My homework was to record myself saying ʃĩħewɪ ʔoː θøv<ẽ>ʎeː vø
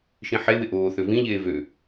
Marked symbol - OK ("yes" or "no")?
no